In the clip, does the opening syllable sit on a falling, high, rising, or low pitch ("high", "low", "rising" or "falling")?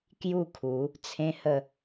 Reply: falling